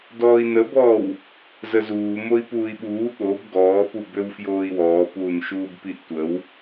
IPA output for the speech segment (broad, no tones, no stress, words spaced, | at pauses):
dɔːi̯nəbɔːw | zəzuː moi̯puːi̯ɓuː ɠob ɡɔː pubøwfjoːi̯wɔː puːnʃuːbpiʔtʷəw